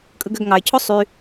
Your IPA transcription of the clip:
kʼ ɯ ɡ ø ɡ ŋ ɑ ɪ̯ cʰ o sˤ y

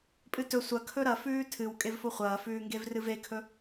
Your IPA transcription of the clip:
pʼ ɨ t ɵ sʷ ɐ kʰ ɵ ɾ ɐ f ʉː tʰ ɨ w kʼ e v f o χʷ ɐː f ʉː ŋ ɡ e v r ɨ v e kʰ ɵ

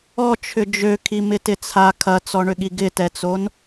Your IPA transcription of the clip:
ɔ t͡ʃʰ ʏ d͡ʒ ø kʰ i m ɪ t ɪ t͡sʰ a kʰ ɐ t͡s ɔ ɳ ʏ ɠ i ɡ ɪ t ɛ t͡s o n

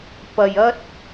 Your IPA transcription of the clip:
p ɐ˨ j ɐ˥ t̚

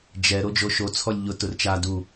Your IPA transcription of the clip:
d͡ʒ ɛ ɾ o d͡ʒ o ʃ o t͡sʰ ɔ lʲ ʎ ʊ t ʊ r t͡ʃ a d u

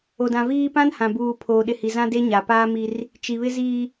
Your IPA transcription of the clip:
o˨ d ã˨ v iː˦ p ã˦ n h ã˨ b uː˨ pʰ oː˨ ɗ ɪ˨ h i˨ z ã˦ d e˦ ɲ a˨ p aː˦ m i˦ r | t͡ʃ i˨ β ɪ˦ z iː˦

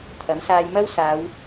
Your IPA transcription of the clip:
t̪ʰ ɐ˨˥ m s aː˧ j m ɐ˥ w s aː˨˧ w

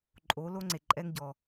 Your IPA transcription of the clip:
ǃʼ o˨˦ l o˦ ŋ͡ǀ e˨ ǃʼ ɛ˦ ŋ ɟ ɔ˨

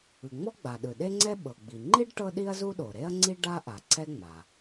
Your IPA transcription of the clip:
ɯ˩ ŋ͡m ɔ˥ ɡ͡b a˩ ɗ ɯ˩ ɗ e˥ ŋ͡ǀ ɛ˥ ɓ ɤ˩ ɡ͡b i˩ ŋ͡ǃ i˥ ɖ ʈ ɤ˥ ɗ i˥ ɐ̯ z u˥ ɗ o˩ ɾ e˥ ɐ̯ ŋ͡ǀ i˥ ɖ a˥ ʔ a˩ ǀ ɛ˥ ŋ͡m a˩

